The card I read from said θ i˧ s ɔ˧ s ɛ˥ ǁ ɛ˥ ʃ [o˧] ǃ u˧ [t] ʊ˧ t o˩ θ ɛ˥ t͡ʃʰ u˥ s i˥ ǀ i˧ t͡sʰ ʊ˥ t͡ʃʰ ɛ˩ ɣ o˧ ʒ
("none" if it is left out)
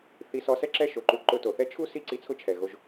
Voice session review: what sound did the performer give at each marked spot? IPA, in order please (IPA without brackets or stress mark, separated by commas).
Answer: o˩, ǃ